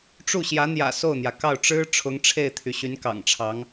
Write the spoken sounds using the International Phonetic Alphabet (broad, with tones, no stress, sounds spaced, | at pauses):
ʈ͡ʂ u˥˩ ɕ j ä˧˥ n̪ j ä̰˨˩ s o˥˩ ʊ̯ n̪ j ä˩ k ɑ˥˩ ʊ̯ ʈ͡ʂ ɻ̩˥ ʈ͡ʂʰ ʊ˧˥ ŋ ʈ͡ʂʰ e˥˩ ɪ̯ t̪ʰ y˩ ɕ y˧˥ n k ɑ̰˨˩ ŋ ʈ͡ʂʰ ɑ˧˥ ŋ